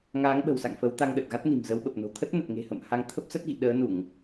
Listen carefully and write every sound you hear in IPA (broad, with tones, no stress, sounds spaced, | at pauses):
ŋ aː˨˦ ŋ ɓ ə̤˨˩ w s a̰˧˨ ŋ f ə˨˦ w t̪ a˧ ŋ ɗ ə˨˩ t̚ ɣ a˦˥ t̚ n i̤˨˩ m z ə˨˦ w ɓ ə˨˩ p̚ n o̤˨˩ t̪ʰ ə˦˥ t̚ n ə˨˩ t̚ ŋ e̤˨˩ h ə̰˧˨ m h a˨˦ ŋ t̪ʰ ə˦˥ p̚ s ə˦˥ t̚ ɣ ḭ˧˨ ɗ əː˨˦ n u˧˩˨ ŋ